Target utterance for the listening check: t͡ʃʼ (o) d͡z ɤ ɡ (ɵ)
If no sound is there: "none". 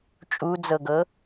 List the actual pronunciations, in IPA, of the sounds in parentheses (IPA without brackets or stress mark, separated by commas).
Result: u, ɤ